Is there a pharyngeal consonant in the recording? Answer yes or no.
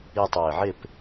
yes